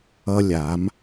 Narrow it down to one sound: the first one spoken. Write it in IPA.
ʌ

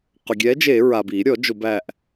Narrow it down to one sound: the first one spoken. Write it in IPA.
q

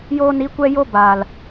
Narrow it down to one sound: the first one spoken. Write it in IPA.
j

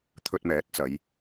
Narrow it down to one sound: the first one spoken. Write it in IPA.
t̪ʰ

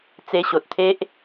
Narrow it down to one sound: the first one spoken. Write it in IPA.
t͡s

